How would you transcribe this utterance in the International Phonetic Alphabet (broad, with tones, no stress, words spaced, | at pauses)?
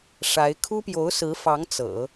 ʂa˧˥ɪ̯ kʰu˥pjo˧˥ʊ̯sɹ̩˧˥fɑ˧˥ŋ t͡sɤ̰˨˩˦